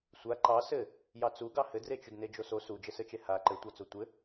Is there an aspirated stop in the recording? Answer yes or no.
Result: no